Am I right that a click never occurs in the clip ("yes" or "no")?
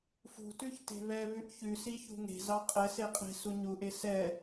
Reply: yes